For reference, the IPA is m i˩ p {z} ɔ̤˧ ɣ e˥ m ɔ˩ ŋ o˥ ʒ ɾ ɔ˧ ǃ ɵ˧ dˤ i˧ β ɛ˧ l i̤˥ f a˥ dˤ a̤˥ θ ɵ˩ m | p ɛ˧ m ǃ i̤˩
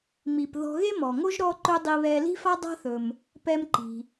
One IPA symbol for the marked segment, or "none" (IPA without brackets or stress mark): ð